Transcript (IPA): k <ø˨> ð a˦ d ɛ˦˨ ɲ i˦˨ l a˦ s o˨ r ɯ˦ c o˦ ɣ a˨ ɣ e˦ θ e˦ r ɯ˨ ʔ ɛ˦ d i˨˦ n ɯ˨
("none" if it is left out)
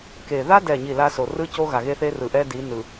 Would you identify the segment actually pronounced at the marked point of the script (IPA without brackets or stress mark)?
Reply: e˨